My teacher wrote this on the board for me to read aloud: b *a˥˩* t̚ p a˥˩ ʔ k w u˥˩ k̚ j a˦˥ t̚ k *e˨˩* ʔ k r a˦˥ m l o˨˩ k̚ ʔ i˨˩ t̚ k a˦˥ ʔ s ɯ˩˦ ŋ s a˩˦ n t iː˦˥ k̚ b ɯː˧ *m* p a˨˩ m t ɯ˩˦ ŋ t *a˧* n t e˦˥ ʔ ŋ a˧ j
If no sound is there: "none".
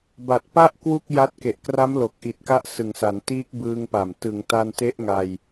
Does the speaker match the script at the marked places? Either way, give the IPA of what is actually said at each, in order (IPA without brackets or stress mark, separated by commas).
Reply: a˨˩, e˨˩, ŋ, a˧